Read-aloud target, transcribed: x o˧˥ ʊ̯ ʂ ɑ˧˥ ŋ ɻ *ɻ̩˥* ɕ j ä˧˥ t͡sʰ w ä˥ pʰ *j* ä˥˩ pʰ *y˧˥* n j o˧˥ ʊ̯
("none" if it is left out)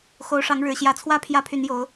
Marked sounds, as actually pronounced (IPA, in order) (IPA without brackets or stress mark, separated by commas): ɻ̩˨˩, j, y˧˥